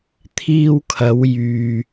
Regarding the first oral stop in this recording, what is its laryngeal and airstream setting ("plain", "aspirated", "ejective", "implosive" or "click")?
aspirated